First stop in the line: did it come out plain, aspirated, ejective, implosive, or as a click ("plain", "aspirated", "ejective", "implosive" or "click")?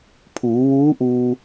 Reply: aspirated